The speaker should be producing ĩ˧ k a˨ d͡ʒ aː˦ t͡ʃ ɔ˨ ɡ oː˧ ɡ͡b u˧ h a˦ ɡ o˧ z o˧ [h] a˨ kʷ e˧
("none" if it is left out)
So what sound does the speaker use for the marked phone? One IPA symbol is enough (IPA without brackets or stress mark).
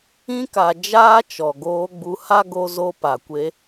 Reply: p